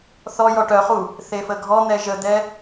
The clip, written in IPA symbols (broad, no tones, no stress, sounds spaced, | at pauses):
θ ɔ j ɔ ʈ œ χ u | θ e f ə ɡʱ ɔ n̪ ɛ ʒ ə d̪ ɛ